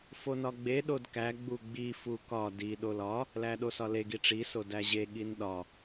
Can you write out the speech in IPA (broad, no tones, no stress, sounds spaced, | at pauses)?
f o n ɒ ɡ͡b e ɗ o d k æ ɡ͡b u ɡ͡b i f u k ɒ d i ɗ o l ɒ | l æ ɗ o s ɒ l e ɡ i ʈ͡ʂ i s o d æ ʑ e ɠ i n ɗ ɒ